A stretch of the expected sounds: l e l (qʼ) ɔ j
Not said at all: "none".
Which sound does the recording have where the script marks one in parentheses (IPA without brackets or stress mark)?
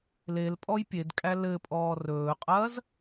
pʼ